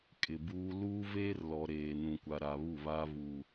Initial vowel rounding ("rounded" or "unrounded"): unrounded